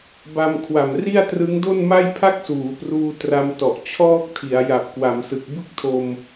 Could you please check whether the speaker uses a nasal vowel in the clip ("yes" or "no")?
no